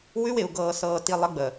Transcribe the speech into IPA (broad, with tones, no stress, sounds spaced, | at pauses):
w ʉ˦ w ɪ˨ u̯ ɡ ɤː˨ s ɤː˨ t i˨ lˠ ə˨˦ ɡ͡b ə˨